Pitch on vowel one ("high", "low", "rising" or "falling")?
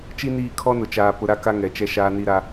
high